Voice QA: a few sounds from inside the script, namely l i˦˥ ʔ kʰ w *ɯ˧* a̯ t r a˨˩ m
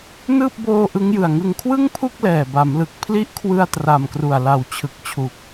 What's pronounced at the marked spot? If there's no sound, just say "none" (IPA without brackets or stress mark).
ɯ˧